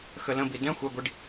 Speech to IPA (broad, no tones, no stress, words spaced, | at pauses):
xələ̃bi dɛ̃ xʷɛɡʷiɖ